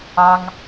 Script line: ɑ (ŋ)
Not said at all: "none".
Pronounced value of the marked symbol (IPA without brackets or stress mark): ŋ